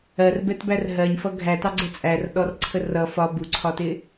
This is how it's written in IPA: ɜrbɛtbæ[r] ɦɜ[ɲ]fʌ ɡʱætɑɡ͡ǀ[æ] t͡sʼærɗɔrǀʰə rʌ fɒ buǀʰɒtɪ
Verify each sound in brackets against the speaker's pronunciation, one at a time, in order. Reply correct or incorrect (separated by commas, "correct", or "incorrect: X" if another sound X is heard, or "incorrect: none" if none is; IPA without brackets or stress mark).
correct, correct, incorrect: ɛ